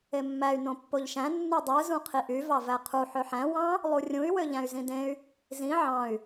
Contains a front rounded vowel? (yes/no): yes